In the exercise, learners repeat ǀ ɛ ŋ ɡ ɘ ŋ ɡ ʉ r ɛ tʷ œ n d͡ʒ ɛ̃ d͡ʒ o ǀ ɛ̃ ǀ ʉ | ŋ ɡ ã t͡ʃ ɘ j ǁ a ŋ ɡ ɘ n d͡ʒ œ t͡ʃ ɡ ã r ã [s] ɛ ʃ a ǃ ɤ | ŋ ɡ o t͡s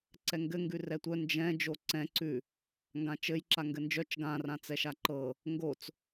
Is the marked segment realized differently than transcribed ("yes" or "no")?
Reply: yes